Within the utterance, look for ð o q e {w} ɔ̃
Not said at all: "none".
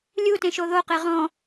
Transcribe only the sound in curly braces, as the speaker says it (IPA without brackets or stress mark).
ʁ